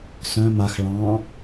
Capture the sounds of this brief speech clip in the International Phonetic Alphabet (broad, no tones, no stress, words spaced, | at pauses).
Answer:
sœ̃ max ɭɑ̃